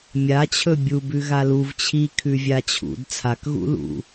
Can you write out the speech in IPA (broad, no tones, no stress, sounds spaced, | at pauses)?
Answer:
mʲ a t͡ɕʰ ɵ bʲ u b ʉ ɣ a l u v t͡ɕʰ i kʰ ʉ vʲ a t͡ɕʰ ṵ d t͡sʰ a k ɣ ṵ l ṵ